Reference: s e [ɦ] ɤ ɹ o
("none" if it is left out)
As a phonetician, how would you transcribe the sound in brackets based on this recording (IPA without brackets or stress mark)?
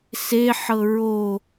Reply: ħ